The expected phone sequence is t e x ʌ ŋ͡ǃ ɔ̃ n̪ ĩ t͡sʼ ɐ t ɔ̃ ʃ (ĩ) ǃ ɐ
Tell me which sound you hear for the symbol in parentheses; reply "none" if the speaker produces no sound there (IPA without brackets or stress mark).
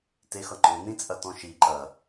i